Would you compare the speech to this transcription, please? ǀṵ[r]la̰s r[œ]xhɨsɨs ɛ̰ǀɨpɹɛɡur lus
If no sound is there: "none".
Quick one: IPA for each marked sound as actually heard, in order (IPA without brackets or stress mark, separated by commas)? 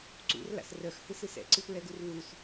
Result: r, œ